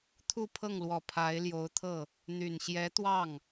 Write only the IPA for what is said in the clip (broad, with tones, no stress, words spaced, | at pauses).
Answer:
t̪ʰu˥˧pʰɤ˥˩ŋlwɔ˨˩ pʰa˧˥ɪ̯ ljo˧˥ʊ̯t̪ʰɤ˥˩ | n̪y˨˩n ɕjɛ˧˥t̪wɑ˥˩ŋ